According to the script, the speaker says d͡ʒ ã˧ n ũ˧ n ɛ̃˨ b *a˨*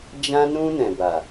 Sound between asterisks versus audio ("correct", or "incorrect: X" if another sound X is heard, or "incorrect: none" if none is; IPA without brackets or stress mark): correct